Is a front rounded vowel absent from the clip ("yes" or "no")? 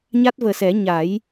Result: yes